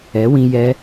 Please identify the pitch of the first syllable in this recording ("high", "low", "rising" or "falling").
rising